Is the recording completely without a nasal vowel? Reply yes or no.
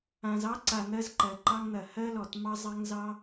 no